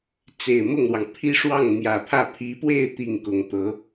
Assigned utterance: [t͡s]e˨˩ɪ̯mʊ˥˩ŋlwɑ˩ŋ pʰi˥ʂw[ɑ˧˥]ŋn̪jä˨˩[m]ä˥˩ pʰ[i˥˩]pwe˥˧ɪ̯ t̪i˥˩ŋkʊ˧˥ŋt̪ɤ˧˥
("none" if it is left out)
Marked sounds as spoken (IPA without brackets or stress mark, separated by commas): t͡s, ɑ˥˩, pʰ, i˧˥